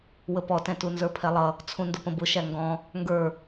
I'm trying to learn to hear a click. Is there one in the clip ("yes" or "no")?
no